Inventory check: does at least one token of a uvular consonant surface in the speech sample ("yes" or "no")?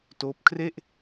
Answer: no